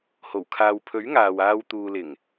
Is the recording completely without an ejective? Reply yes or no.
yes